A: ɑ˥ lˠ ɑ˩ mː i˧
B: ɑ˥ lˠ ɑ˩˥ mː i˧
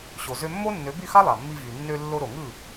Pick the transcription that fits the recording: A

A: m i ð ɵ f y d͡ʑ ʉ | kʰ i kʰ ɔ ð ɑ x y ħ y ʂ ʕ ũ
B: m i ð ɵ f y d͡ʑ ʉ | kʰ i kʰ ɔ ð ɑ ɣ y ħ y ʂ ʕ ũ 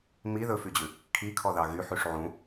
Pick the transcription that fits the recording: B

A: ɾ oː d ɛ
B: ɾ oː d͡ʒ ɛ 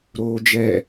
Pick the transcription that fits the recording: B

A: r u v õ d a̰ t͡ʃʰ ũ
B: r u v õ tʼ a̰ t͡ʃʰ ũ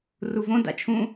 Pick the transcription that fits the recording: A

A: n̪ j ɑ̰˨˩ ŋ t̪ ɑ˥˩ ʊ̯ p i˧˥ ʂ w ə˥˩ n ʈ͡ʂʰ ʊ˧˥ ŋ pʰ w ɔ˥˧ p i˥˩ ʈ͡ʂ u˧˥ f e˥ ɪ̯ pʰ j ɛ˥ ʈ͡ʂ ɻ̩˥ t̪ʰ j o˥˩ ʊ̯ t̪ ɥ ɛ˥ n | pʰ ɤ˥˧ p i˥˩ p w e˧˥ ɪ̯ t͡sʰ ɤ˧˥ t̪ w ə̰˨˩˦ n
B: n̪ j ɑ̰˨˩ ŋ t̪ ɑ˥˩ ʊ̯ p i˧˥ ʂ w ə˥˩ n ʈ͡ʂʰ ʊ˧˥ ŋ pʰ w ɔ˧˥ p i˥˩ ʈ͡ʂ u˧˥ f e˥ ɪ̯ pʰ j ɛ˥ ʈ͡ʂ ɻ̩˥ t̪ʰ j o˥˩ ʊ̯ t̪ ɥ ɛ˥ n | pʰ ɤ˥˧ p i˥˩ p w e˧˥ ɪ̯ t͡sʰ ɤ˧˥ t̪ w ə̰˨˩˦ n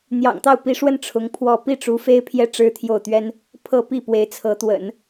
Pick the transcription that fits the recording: A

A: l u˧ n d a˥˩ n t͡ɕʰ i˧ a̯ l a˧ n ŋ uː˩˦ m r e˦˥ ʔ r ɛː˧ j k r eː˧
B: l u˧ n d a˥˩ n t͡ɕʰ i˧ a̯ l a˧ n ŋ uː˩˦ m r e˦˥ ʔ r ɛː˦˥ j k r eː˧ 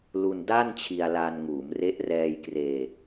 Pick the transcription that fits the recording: A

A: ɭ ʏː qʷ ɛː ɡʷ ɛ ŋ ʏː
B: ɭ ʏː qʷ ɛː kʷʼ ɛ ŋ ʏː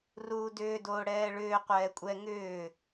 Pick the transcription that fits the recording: B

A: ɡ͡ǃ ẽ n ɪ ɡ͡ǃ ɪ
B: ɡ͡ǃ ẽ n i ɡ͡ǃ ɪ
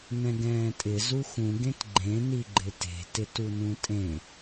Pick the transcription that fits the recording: B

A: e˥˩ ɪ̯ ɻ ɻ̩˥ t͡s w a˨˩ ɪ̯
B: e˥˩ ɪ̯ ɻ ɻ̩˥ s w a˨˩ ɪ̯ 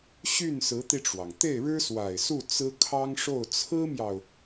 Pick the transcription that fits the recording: B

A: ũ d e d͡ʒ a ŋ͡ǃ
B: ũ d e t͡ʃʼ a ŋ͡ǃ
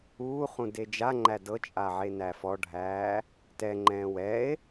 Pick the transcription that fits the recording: A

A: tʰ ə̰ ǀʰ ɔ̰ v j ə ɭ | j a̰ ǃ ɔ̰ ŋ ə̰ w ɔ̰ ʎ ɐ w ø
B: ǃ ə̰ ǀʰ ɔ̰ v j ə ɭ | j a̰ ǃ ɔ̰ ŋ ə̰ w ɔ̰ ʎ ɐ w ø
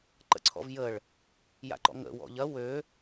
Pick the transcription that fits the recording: B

